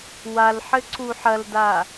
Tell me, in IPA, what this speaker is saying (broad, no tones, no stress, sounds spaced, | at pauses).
w a l ħ ɘ ǀ u ħ ɐ l d a